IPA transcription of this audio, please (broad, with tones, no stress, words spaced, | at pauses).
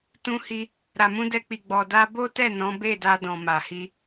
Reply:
tũ˧hi˧ | ɾa˨mũ˧dɛ˧k͡pi˨ ɡ͡bɔ˨da˧bo˦tɛ˦˨ nɔ̃˨˦be˦˨da˧ dɔ̃˨ma˨hi˧